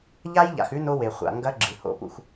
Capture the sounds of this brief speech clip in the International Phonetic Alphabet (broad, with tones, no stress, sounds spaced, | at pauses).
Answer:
ʎ a˦ j ʎ a̰˨ x ʉ˦ n o˦ w e˨ χʷ a̰˨ ŋ ɡ ɐ˦ ɡ͡ǁ ɨ˨ h o̰˦ p ṵ˦ x